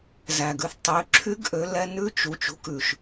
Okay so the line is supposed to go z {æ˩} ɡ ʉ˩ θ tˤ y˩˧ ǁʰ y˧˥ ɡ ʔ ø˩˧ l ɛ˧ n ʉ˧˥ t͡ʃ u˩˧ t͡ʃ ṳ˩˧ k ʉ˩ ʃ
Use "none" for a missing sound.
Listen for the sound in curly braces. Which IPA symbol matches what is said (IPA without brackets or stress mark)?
æ˩